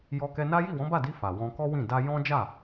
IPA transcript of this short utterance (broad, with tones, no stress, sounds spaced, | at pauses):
j ɔ˧ k ɛ˧ n a˦ j i˦˨ w ɔ̃˨˦ b a˦˨ d i˧ f a˨ w ɔ̃˧ k ɔ˦ w ĩ˦˨ d a˧ j ɔ̃˦ d͡ʒ a˦˨